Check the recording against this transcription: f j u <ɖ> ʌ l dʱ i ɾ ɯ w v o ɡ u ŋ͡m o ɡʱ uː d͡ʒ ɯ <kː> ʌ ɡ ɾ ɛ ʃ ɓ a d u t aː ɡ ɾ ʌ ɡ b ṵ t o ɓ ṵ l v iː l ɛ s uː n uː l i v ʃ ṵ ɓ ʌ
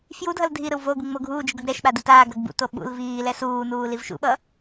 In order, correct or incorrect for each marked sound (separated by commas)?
incorrect, incorrect